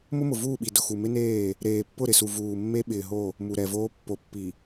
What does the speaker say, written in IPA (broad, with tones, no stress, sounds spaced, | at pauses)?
m ʊ˦ m ʊ˨ v uː˦˨ ɓ i˨ d ʊ˨ x u˨ m ɪ˦ n eː˦˨ | ɾ eː˨ pː ʊ˦˨ ɾ ɪ˨ s u˨ v uː˨ mː e˦ ɓ ɪː˨ ɦ o˦˨ | m u˨ ɾ ɛ˨ v oː˦ pː o˨˦ pː i˨